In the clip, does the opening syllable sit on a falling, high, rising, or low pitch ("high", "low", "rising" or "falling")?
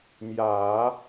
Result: low